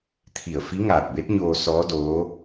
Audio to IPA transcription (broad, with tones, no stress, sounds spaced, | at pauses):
t̪ʰ i˧˩ ə̯ f i˧˥ ŋ aː˧˩ t̚ b e˧˥ t̚ ɲ oː˧ s ɔː˧˥ d oː˧˥